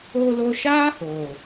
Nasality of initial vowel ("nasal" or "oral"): oral